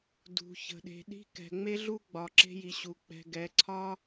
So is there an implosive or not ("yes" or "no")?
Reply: yes